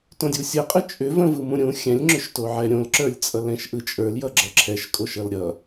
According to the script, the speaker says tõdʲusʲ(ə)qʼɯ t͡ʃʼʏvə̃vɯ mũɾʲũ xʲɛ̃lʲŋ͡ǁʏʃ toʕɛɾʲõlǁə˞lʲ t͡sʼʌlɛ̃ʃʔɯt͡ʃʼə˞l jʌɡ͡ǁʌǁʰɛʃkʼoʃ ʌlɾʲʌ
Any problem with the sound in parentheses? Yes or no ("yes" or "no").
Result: no